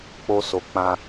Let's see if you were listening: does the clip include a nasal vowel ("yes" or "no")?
yes